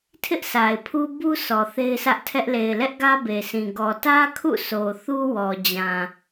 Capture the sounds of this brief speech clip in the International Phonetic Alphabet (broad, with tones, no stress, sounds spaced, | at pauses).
tʰ ɪ˦ ʔ sʰ a˨ ɪ̯ pʰ u˦ b u˦ s ɔ˨ θ e˦ ɪ̯ s ä˦ ʔ tʰ ɛ˦ ʔ l e˨ ɪ̯ l ɛ˦ ʔ ɡ ä˦ b e˨ s ĩ˨ ɡ ɔ˨ t ä˦ kʰ ṵ˦˨ s o˨ θ u˦ w ɔ˨ d͡ʑ ã˨